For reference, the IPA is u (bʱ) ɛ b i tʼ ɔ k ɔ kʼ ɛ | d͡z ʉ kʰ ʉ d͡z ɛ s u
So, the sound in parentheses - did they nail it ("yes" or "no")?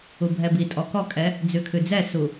yes